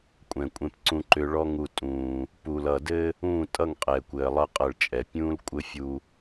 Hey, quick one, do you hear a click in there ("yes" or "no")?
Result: yes